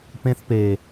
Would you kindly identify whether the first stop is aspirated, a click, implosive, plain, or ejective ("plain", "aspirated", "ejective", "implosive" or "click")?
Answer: plain